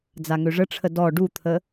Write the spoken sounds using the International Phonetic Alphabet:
d͡zaŋøʐəʈ͡ʂʰə dɔ ɖut̪ʰə

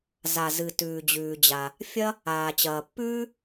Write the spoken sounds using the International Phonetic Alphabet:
za˩zɨ˩ tʉː˩d͡ʑʉː˩d͡ʑa˩ | fʲɐ˥ | aː˩t͡ɕɐː˩pːʉː˥

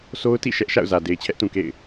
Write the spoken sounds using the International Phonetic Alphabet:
sʰo˦ʊ̯tḭ˦˨ ʃɛ˦ʔʃa̰˦˨ʊ̯zä˨ de˨ɪ̯t͡ɕʰɛ˦ʔtũ˨kḛ˦˨ɪ̯

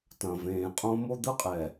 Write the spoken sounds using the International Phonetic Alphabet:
tɐ̃ː˨vẽː˨qʼõ˦ mo˦d̪ɯ˦qʼɛ˨

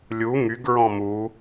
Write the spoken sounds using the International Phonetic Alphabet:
lʲu ŋyɡɹɔ̃ mu

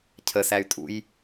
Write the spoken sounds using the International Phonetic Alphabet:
cʰəsæy̯tʼṵj

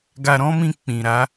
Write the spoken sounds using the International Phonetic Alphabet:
ɡa˧ɾɔ̃˦mĩ˧ k͡pĩ˨ɾa˨˦

